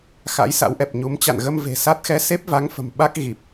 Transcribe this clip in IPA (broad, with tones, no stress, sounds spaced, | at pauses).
x a̰˧˥ j s a̰˧˥ w ʔ ɛ˨˩ p̚ ɲ u˨˦ m t͡ɕ a̰˧˨ n ɣ ə˧ m v e̤˨˩ s a˦˥ t̚ x ɛ˧ s e˦˥ p̚ v a˨˦ ŋ f ə̤˨˩ m ɓ a˦˥ k̚ ɣ i˨˩ p̚